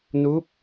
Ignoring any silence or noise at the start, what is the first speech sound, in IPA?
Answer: n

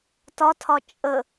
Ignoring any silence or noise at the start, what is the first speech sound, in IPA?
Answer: t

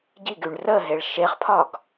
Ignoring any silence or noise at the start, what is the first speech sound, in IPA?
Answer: ɟ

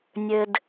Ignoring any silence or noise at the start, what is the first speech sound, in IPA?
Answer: nʲ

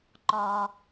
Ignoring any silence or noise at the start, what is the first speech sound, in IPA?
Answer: ǃ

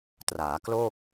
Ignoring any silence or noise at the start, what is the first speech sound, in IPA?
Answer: t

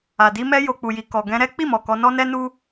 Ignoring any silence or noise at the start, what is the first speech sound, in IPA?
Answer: a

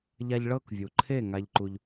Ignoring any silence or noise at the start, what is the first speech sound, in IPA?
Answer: ʎ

